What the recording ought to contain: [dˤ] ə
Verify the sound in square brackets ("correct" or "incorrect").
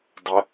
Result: correct